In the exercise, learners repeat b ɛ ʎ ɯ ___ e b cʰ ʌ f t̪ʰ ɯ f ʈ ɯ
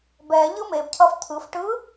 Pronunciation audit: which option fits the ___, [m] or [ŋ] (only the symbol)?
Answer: m